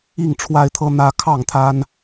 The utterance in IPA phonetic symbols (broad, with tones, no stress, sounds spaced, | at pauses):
i˥˨ ŋ ʈ͡ʂʰ w a˦ ɪ̯ t̪ʰ ɤ˦ n̪ ä˦ kʰ ɑ˥˨ ŋ t̪ʰ a˦ n